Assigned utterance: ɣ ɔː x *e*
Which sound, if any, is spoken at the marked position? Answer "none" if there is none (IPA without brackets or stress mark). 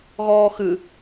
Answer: ɨ